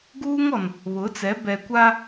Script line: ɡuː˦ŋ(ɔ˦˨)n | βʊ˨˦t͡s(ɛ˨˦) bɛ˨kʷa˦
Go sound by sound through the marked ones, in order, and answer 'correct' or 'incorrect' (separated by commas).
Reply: incorrect, correct